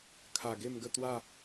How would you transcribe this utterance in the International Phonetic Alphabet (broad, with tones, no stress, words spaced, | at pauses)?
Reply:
kʰa˨˩ ɡe˥˧mɡə˥˧ t̪wa˥˧